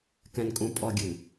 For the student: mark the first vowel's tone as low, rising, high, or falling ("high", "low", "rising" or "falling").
low